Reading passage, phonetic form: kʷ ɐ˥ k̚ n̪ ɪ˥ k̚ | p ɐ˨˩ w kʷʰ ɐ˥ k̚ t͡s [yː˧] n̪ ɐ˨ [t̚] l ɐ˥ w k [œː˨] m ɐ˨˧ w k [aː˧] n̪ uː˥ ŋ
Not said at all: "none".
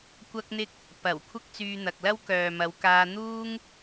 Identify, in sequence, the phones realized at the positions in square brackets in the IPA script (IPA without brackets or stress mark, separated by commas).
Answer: yː˧, k̚, œː˨, aː˧